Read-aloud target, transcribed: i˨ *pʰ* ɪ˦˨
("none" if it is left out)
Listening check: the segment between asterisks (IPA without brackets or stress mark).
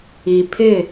pʰ